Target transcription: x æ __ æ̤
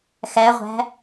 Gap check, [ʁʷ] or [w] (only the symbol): ʁʷ